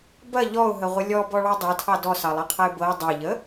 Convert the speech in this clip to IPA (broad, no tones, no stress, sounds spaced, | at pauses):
b ɐ ʎ ɔ ʊ̯ ɦ ə ʁʷ ə lʲ ɔ b ɔ ɭ ɑ dˤ ɤ tʰ ɑ d ɔ s ɑ lˠ ɐ qʰ ɐ ɪ̯ b ɤ ɪ̯ dˤ ɐ ʎ ə